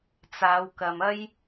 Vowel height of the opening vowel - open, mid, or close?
open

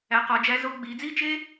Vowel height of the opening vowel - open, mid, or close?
open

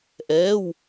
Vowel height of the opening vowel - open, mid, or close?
mid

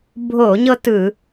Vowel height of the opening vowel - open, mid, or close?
mid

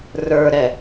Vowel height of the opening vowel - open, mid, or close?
mid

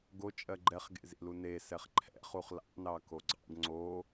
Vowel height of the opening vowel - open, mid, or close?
mid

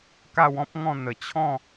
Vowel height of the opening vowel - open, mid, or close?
open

